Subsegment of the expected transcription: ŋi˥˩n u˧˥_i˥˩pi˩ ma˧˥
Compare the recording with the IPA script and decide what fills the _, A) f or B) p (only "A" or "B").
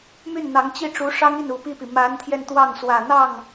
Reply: B